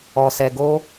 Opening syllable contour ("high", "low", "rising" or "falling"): low